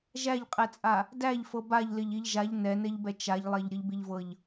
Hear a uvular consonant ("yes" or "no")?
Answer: yes